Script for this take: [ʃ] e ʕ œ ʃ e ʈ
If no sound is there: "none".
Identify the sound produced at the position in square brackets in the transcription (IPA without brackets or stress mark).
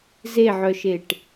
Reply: z